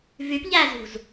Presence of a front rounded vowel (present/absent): present